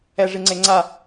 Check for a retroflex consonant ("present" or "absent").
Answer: present